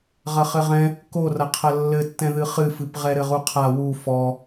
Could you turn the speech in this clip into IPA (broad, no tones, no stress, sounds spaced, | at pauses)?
ʁ ɐ χ ɘ ʁ ɛ̃ | k o r ɐ qʰ ɐ lː ɘ tː ɛ̃ ð ɨ χ ɨ f ɨ p ʁ ɛ ɾ ɘ ʁ u qʰ a w u f ɔ